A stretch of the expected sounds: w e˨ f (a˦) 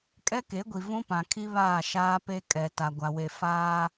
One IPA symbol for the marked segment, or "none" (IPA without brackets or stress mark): aː˦